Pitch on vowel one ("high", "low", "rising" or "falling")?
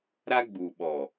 high